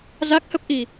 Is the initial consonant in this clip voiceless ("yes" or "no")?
no